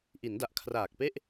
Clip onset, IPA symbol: ʔ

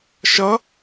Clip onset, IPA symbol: ʃ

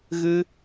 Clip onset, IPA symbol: ɣ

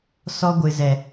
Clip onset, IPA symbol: s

